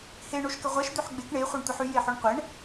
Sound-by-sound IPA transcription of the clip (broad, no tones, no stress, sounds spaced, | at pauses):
h e ɳ o ʃ k ə ʁʷ ɛ ʃ d̪ ø ħ ɡ͡b e k ɳ e χʷ ɛ ɳ tʷ ɛ ħ y j e ħ o ɳ qʷ ɛ ɳ